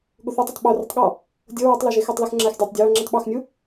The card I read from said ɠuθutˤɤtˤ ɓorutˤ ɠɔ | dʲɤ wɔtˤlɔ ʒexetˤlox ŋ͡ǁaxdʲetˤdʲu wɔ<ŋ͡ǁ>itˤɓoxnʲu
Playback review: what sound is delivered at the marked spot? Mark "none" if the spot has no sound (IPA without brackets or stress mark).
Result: ŋ͡ǁ